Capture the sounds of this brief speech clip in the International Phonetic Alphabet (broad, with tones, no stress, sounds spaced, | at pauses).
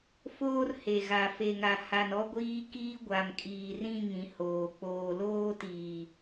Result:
f oː˦ r h e˨ ɣ a˨ f e˨ ŋ a˨ h a˨ n ɔ˦ ɡʷ iː˦ k iː˦ ɡʷ a˨ m kʼ iː˨ r ĩ˦˨ ŋ ĩ˨˦ h oː˨ k͡p oː˨ l oː˦ t iː˨